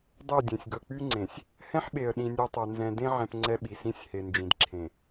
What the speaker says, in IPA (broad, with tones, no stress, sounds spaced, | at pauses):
dˤ e˦˨ dʲ ẽ˨ sʲ ɡ ɵ˨ k͡p y˦ ŋ͡ǀ ẽ˨ sʲ | h ɛ̃˦ ħ ɓ e˨ ə̯ ɗ ĩ˨ nʲ e˦ tˤ ɛ˨ n z ɛ̃˨ d ẽ˦ ʕ ɛ̃˨ p ŋ͡ǀ ɛ˦ ɓ i˨ s ĩ˦ sʲ h e˨ n d͡ʒ ĩ˨ d ǁʰ ẽ˨